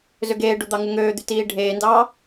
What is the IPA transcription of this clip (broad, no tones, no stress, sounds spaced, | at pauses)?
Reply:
z ø ɡ eː ɖ o d̪ ɑ ŋ u ŋ øː d̪ y t iː ɖʱ eː n d ɑː